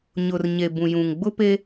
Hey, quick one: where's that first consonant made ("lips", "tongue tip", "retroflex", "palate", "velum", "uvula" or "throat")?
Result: palate